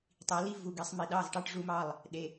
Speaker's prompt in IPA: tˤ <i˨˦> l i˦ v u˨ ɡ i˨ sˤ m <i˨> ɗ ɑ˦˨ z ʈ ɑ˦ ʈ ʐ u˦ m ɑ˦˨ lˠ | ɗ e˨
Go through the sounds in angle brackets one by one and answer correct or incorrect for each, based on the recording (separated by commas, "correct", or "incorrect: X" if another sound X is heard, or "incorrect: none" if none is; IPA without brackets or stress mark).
correct, correct